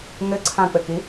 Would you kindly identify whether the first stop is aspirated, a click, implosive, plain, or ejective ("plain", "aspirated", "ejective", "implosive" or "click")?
click